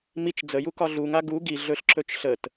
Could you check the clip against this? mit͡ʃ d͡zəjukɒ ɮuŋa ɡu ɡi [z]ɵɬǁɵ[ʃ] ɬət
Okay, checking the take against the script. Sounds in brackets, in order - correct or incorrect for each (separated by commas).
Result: incorrect, incorrect